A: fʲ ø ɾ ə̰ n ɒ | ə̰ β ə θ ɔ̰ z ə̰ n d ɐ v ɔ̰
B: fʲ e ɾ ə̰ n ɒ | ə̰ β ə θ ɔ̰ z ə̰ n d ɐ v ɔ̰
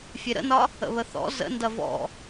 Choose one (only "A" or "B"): B